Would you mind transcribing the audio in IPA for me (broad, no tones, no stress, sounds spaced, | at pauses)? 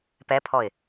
p ɛ pʰ ɔ ɪ̯